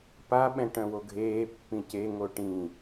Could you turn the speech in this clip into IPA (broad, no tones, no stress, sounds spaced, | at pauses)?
p a ɓ ɛ̃ ʈ œ̃ w o ɡʱ eː pː ĩ c e ŋ o ʈ ĩ